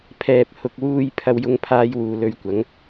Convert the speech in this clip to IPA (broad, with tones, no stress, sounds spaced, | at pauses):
pʰ ɛː˨ p̚ h ʊ˨ k̚ w uː˧ j pʰ ɐ˥ w j ʊ˥ ŋ pʰ aː˥ j w uː˨ l ɵ˧ ɥ kʷ ɐ˨˥ ŋ